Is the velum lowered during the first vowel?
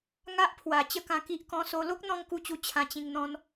no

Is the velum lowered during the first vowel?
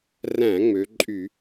yes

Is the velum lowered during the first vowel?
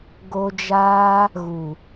no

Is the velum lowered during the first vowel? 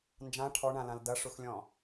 yes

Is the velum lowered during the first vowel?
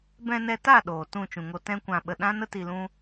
yes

